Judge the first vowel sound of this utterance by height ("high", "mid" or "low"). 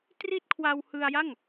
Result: high